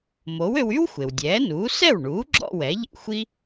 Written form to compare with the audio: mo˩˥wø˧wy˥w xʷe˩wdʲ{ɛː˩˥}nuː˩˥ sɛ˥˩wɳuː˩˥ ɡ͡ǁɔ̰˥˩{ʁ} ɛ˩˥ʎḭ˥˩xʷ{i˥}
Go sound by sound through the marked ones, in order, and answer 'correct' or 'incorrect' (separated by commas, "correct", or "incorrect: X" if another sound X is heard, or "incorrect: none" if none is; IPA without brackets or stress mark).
correct, incorrect: w, correct